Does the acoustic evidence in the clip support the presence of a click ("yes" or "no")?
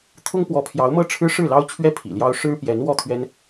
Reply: no